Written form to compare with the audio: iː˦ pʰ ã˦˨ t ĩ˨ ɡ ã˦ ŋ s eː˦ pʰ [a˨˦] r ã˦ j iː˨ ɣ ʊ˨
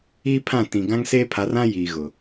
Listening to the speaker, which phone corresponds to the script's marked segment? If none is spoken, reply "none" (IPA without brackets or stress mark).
a˨˦